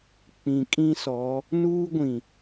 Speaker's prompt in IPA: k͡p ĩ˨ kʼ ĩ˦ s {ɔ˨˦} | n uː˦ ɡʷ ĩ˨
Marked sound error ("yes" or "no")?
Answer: no